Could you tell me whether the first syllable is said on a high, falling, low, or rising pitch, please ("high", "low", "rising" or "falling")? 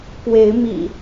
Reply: rising